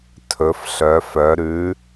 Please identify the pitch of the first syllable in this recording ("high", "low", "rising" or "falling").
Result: rising